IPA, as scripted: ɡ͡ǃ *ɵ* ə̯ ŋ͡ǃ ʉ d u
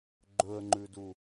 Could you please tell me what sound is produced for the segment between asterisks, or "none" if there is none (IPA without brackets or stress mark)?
ɵ